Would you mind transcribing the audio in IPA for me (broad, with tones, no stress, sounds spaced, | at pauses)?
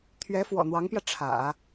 t̪ʰ ɥ ɛ˧˥ f w ɔ̰˨˩ n̪ w ɑ˧˥ ŋ p j ä˧ ʈ͡ʂʰ ä̰˨˩˦